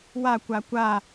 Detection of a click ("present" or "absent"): absent